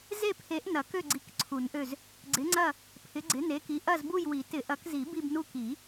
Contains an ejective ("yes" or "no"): no